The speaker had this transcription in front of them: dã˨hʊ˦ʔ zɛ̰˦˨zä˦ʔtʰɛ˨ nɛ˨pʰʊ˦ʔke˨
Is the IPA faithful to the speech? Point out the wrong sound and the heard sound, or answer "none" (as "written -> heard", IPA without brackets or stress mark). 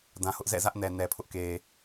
tʰ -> n